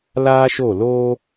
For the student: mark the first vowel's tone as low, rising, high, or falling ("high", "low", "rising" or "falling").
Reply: high